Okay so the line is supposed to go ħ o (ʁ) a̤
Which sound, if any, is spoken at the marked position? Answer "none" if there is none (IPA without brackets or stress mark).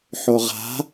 ʁ